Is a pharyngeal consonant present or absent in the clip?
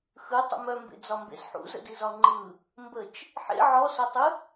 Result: present